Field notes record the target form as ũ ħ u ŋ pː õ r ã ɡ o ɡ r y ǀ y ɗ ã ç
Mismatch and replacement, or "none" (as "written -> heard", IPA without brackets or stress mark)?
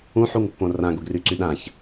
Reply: none